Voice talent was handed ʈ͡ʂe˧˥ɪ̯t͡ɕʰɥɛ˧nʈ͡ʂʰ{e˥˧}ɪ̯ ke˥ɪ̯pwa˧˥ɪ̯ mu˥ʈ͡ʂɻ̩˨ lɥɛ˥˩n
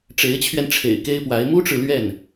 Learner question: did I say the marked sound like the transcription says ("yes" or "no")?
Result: no